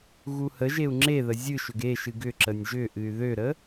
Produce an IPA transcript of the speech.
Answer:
ɣ u h ə ʒ e u̯ ŋ͡ǁ e ð ə zʲ ɨ ʃ ʏ ɡ e ʃ ɨ ɡ ʏ ǁ ə nʲ ʒ ʏ ʔ ɨ y̯ ð ø ɾ ə

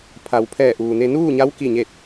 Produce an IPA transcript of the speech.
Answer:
pʰ a˩˧ w pʰ ɛː˧˩ ʔ uː˩ n e˧ n uː˥˨ ɲ a˧˥ w k i˧˩ ɲ e˧˩ t̚

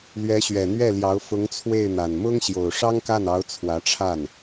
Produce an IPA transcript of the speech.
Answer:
l ɥ ɛ˧˥ ɕ ɥ ɛ˨˩ n̪ ɥ ɛ˥˩ l j ɑ˧˥ ʊ̯ f ʊ˧˥ ŋ t͡sʰ w e˥˩ ɪ̯ n̪ a˨˩ n m ʊ˥ ŋ ɕ j o˨˩ ʊ̯ ʂ ɑ˥ ŋ k a˥˩ n ɑ˧˥ ʊ̯ t͡sʰ w ä˧˥ ʈ͡ʂʰ a˥˩ n

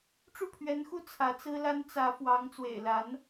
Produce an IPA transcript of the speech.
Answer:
ʈ͡ʂ u˥˩ pʰ ɥ ɛ˧˥ n x u˥˩ t͡sʰ ä˧˥ t͡s ɹ̩˥ l a˥ n t͡s ä˧˥ f w ɑ˧˥ ŋ t͡s w ḛ˨˩ ɪ̯ l a˧˥ n

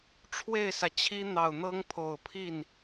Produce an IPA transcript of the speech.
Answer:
ʈ͡ʂʰ w e˥˩ ɪ̯ s ä˩ t͡ɕʰ i˥ n̪ ɑ˨˩ ʊ̯ n̪ ɤ˥ ŋ pʰ o˨˩ ʊ̯ pʰ i˥˩ n

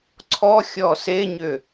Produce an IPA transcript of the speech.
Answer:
ǀʰ ɔ xʲ ɔ s e ɲ ʏ

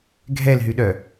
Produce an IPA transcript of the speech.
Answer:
ɡʱ ɛ l ɦ y ɗ œ

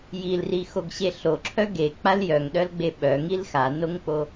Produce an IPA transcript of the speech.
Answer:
j i l r i x o ɡ ɕ e ɬ o ǁʰ œ ɡ e k͡p a l j œ ŋ ɗ œ l ɡ͡b e ɓ œ ŋ i l x a n o ŋ k͡p o

